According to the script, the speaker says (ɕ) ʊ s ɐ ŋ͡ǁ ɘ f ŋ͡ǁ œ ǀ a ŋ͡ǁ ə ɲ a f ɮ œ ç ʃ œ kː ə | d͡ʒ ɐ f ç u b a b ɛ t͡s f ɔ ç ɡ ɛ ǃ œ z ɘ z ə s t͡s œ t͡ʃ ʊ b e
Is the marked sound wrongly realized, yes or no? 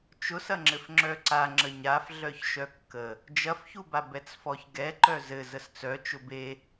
yes